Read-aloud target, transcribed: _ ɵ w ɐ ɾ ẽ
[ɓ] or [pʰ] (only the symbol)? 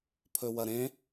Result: pʰ